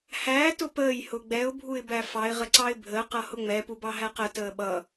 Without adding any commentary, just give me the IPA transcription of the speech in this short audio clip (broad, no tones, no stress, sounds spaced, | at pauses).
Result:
h æː t ʊ p əː j h ʊ ɡ͡b ɛ ʊ̯ bʱ u ɪ̯ b æ f ɑ ɪ̯ ʁ ə ǀ ɑ ɪ̯ bʱ əː q ʌ h ʊ ŋ͡m ɛ p u b ɑ ɦ æ q ə t əː ɓ ʌ